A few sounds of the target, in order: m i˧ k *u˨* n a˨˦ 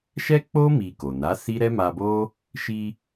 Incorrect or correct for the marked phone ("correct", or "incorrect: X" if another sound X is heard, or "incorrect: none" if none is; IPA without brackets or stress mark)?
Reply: incorrect: o˨